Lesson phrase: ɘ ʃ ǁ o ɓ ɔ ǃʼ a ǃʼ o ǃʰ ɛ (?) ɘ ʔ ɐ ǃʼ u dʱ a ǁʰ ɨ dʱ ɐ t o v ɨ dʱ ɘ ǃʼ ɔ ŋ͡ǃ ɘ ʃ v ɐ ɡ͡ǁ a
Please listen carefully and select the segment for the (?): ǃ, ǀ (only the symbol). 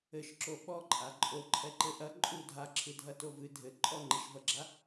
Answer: ǃ